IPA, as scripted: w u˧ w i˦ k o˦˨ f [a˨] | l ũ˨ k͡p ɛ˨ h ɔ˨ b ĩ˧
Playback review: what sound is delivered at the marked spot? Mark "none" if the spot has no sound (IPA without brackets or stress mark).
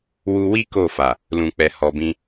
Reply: a˨